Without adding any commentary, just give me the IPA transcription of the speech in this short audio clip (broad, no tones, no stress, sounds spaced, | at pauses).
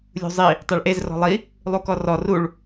lʲ ṳ zˤ i | tˤ ɛ ɭ ʔ e z r ɔ̤ lˠ i | lˠ u k ɔ r ɔ r u ɭ